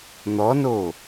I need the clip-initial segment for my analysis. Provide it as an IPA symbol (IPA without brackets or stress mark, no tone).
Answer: n̪